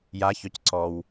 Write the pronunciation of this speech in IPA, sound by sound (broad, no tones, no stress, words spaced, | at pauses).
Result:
jaçœc ǀɔw